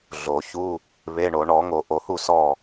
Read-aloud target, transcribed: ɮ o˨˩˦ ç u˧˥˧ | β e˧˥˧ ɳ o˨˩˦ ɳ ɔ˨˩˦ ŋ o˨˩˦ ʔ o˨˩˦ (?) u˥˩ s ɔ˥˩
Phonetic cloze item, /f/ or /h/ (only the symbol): h